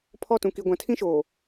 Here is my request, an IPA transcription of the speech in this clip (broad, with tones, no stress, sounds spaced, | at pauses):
pʰ ɔ˦˨ t ũ˨ k i˨ ɡʷ ã˨ tʰ ĩ˦ ʃ oː˨